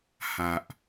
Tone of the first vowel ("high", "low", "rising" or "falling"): low